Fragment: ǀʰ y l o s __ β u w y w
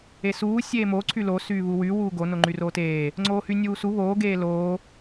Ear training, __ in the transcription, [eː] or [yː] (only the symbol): yː